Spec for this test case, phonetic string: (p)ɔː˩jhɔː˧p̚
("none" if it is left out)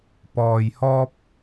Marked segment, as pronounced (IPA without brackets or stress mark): p